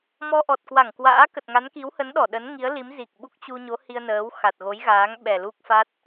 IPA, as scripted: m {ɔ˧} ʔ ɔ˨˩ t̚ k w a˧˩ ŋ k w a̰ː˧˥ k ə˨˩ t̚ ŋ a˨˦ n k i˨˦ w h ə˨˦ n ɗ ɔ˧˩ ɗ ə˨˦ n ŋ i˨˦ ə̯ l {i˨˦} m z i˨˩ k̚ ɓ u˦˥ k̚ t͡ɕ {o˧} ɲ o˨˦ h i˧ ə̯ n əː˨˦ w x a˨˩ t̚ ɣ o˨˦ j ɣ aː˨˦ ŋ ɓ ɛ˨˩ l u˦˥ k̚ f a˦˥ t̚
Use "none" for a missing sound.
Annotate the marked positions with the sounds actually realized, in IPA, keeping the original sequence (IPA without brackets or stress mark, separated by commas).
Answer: ɔ˧, i˨˦, u˧